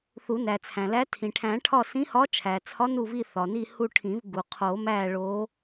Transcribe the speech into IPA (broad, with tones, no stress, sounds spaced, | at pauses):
θ u˨˩˦ n æ˩ t͡sʰ æ̃˩ l æ˧˥ tʰ ĩ˩ ʈʰ æ̃˨˩˦ ʈʰ ɒ˦˨ s ĩ˧˥ h ɒ˧˥ t͡ʃʰ æ˩ t͡sʰ ɒ˧˥ n u˦˨ v i˦˨ θ ɒ˩ n i˦˨ h u˦˨ ʈʰ ĩ˨˩˦ v ɡ u˩ qʰ o˨˩˦ m æ˦˨ ɭ o˧˥